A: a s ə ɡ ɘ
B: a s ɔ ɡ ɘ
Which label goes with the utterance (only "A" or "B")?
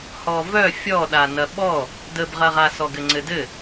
B